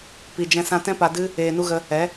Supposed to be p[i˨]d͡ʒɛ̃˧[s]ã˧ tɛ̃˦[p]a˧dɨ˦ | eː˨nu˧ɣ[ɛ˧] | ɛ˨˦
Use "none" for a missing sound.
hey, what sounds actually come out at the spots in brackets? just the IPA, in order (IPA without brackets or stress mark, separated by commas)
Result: i˨, s, p, ə˧